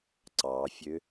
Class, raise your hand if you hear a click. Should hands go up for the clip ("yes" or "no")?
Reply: yes